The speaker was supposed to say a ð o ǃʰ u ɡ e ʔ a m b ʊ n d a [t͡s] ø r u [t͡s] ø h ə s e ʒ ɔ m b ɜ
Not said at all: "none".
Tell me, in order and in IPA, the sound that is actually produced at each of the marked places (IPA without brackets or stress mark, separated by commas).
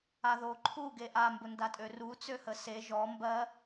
tʼ, t͡s